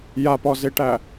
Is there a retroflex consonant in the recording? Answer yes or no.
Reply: yes